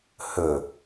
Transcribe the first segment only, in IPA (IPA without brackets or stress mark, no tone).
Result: h